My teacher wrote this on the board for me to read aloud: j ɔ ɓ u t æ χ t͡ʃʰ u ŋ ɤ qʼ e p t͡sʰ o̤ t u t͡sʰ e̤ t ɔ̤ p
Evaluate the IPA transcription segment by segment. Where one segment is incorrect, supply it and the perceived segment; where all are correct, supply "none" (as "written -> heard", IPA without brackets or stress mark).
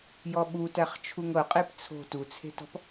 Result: none